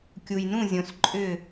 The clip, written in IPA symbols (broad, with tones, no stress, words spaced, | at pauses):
kʲu˨jnũ˦˨zʲõ˨s ǃʼʏ˦˨